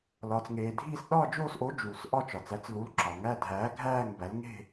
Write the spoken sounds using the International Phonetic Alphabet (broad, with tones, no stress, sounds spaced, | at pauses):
l ɒː˩ t͡s ŋ eː˩ dʱ iː˥˧ s ɗ ɒː˥˧ d͡ʒ oː˥˧ s ʔ o˨˥ d͡ʒ uː˩ s ʔ ɒ˥˧ t͡ʃ ɒ˩ t͡s æ˨˥ t͡s l u˨˥ l ǁ ɒ˩ ŋ æ˥˧ dʱ æː˨˥ ɡʱ æː˥˧ ŋ b æ˨˥ l ŋ e̤˥˧